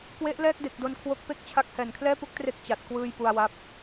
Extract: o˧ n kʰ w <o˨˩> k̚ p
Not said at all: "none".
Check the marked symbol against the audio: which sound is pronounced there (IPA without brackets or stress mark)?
o˦˥